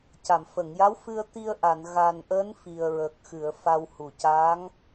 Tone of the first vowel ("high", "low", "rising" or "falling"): low